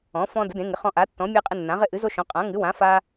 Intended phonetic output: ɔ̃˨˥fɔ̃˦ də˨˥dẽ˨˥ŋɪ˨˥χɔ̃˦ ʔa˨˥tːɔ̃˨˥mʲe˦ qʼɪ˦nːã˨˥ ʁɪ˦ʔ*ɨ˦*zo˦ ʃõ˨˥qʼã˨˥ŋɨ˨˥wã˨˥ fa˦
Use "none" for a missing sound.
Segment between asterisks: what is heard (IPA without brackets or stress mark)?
ɨ˨˥